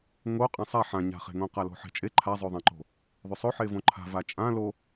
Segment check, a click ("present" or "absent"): present